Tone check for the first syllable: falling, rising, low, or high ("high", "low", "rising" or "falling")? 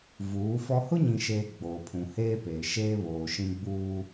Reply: rising